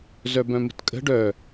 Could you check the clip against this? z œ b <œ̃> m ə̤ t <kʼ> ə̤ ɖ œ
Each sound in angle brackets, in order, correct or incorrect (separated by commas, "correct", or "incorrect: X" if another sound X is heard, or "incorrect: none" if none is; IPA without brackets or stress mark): correct, correct